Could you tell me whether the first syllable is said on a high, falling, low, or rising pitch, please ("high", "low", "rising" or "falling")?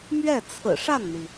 falling